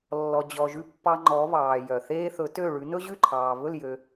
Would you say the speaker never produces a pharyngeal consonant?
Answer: yes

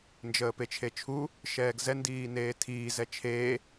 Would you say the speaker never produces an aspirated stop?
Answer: no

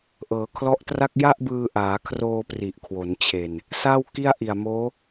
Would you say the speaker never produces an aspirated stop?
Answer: no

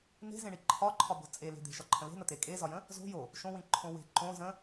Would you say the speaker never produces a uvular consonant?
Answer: yes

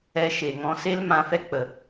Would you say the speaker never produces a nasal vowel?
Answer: no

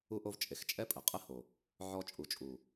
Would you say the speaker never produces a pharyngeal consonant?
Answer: no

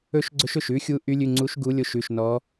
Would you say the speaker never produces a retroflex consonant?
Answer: yes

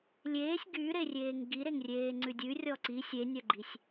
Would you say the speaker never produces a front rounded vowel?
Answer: no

